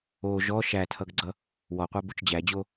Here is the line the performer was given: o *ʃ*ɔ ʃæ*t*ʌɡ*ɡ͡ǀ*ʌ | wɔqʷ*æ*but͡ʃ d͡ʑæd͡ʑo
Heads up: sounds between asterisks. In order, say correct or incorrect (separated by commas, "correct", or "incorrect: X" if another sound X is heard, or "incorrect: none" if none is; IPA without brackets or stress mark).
incorrect: ʒ, incorrect: tʰ, correct, correct